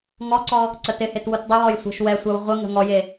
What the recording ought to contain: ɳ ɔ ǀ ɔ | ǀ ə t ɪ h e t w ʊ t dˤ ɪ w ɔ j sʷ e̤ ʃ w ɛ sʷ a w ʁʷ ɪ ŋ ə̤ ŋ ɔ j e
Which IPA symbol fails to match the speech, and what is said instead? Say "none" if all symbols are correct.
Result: ɳ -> ŋ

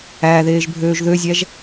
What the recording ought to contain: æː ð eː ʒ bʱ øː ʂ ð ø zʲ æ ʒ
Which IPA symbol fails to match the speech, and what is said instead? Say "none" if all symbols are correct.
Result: ʂ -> ʒ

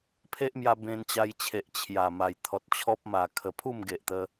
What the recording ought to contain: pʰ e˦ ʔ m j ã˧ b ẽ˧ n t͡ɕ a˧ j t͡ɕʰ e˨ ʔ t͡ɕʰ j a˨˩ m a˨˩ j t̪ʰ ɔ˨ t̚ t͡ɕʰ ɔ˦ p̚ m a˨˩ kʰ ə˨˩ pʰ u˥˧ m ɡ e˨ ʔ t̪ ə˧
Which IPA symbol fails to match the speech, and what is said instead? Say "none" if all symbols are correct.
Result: ã˧ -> a˧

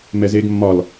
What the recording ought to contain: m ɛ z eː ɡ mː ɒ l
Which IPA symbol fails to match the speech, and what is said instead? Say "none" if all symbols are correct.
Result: none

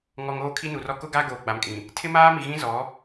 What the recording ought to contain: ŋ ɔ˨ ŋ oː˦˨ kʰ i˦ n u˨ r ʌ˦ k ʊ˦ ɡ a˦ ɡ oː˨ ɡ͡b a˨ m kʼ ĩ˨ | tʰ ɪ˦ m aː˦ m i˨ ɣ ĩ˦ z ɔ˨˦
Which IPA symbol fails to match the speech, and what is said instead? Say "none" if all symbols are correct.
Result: ʌ˦ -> ɔ˦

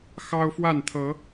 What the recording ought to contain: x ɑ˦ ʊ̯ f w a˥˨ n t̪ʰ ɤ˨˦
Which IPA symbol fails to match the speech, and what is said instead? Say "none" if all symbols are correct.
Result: none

